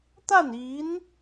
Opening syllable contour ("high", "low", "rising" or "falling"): falling